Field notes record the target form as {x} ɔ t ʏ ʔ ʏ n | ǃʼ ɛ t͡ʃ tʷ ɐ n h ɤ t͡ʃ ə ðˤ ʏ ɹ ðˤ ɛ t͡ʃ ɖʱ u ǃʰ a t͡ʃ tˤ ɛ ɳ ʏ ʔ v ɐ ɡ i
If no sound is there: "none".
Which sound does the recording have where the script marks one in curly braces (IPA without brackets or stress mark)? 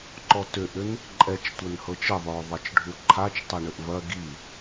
ǃ